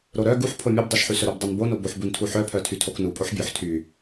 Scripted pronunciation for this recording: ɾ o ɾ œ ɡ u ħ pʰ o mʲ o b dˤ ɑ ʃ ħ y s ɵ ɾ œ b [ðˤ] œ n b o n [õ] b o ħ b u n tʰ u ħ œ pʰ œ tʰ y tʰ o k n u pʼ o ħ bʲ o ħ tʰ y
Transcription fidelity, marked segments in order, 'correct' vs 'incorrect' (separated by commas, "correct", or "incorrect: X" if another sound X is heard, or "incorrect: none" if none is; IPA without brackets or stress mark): incorrect: dˤ, incorrect: o